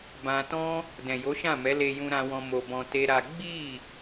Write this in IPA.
bã˧tɔ̃˦ | dɛ̃˨jo˨˦ʃã˦˨mɛ˨˦ le˧jũ˧ɾã˧wɔ̃˧ mo˧bɔ̃˧ te˦ɾa˦ ɡ͡bi˦˨

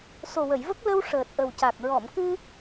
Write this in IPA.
so˨˩wə˨˩˨jvə˦˥k̚ lə˧w ʂəː˨˩t̚ʔə˨˩wca˨˩k̚ ɹɔ˨˩˨mkɨ˧

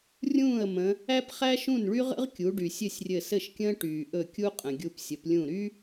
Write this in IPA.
rʲũː˥˩ə̯ mə̃˩˧ | æ˥pχæ˥ʃũ˥˩nɭy˥ ʁə̰˥ʁkʲu˩˧ɖy˩ sʲɘ˥˩sʲrʲɘ˧˩sɘ˥˩ʃkʲə̃ː˥ ʈyː˩ʔɵ˧˩ kʲu˥qʼə̃˩ ɡʲu˧˩psʲə˩˧p lʲũ˧˩ɾy˥

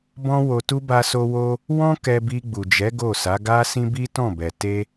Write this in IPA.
bɔ̃˦wo˧tu˦ ba˦so˦wo˦ | wɔ̃˦ kɛ˧bi˧ɡ͡bu˨d͡ʒɛ˨˦ ɡo˦˨sa˨˦ ɡa˦sĩ˦bi˦ tɔ̃˦˨bɛ˨ te˧

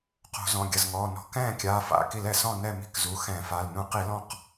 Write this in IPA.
qo̤˧˩˧ zɔ̃˩˧˩ɡʲɐ˩˧˩zŋɔː˩˧˩ nɔ̤˧˩˧kɛ̃ː˥˨ kʲaː˩˧˩f a̰˩˧˩ki˧˩˧lɛ˧˩˧ sɔ̃˥˨nɛ˥˨mi̤˥˨kzu˩˧˩ xɛ̃˧˩˧fa˩˧˩l nũ˧˩˧qi˧˩˧ lɔ̃˥˨q

